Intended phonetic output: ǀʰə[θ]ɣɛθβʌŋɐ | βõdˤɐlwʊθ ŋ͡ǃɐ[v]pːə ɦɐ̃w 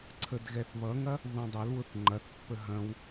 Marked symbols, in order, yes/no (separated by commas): no, no